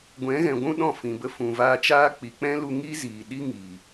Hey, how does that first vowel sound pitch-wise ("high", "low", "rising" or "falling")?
rising